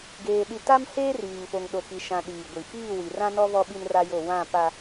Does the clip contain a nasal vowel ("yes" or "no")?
yes